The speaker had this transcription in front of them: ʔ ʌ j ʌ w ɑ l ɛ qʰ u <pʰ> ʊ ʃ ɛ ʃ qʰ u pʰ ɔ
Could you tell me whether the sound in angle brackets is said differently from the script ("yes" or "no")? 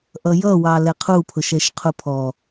no